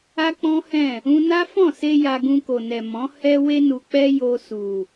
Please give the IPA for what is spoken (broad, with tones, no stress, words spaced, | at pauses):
a˦k͡pɔ̃˦hɛ̃˦˨ | ũ˦ na˦fɔ̃˦˨se˧ ja˧ɡũ˧ko˨nɛ˨ mɔ̃˨˦ hɛ˧ we˧nu˨k͡pɛ˧ jo˧su˨